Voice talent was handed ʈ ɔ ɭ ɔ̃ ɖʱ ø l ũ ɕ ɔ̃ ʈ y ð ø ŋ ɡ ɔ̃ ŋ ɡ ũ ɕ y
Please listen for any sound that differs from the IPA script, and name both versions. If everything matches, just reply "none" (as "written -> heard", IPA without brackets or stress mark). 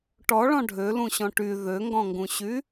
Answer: none